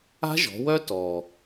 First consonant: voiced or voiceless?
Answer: voiced